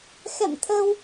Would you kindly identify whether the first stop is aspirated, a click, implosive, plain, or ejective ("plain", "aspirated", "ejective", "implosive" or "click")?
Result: aspirated